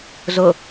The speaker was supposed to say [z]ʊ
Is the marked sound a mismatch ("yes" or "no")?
no